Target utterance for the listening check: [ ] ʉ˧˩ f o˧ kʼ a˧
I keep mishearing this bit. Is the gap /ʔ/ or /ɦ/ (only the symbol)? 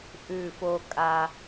ʔ